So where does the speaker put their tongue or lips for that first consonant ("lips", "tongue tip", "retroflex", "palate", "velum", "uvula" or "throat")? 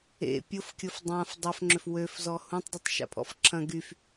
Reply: lips